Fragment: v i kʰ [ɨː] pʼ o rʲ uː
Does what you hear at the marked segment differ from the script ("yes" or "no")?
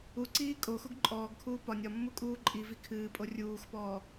no